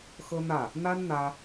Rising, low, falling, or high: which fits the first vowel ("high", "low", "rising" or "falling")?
high